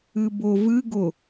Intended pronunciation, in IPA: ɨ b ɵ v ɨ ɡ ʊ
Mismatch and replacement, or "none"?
ɵ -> ʊ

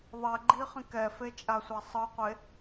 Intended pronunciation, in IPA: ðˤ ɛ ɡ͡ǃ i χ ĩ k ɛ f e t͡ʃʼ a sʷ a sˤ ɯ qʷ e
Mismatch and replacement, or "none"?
none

